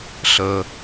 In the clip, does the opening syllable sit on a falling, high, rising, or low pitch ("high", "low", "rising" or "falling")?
low